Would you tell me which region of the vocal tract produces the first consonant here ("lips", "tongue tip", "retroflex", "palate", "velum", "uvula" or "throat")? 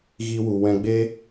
velum